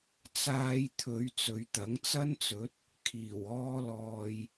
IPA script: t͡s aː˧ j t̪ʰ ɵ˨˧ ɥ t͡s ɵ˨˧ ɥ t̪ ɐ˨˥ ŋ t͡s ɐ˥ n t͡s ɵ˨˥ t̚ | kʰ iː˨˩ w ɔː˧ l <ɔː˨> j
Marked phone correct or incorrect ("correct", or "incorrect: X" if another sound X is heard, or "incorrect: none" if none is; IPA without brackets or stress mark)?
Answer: correct